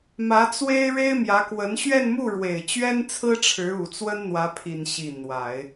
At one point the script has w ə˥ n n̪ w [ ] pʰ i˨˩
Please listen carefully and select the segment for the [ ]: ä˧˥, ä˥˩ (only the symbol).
ä˧˥